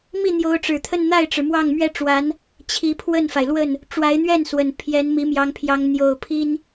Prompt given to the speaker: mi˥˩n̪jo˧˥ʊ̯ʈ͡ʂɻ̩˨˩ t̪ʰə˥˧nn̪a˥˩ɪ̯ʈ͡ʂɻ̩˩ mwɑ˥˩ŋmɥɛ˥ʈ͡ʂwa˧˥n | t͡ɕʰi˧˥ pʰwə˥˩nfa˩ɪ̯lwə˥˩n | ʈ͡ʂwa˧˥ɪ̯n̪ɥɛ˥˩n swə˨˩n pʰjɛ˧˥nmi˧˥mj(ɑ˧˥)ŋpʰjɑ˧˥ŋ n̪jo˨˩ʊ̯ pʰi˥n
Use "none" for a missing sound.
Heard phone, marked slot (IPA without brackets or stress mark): ɑ˧˥